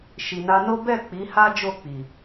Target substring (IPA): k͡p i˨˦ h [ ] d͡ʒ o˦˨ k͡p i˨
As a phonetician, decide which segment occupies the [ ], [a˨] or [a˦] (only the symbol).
a˦